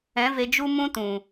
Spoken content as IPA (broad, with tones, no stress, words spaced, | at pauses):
ɛ̃˨˦ve˧ d͡ʒu˦mũ˦ tũ˨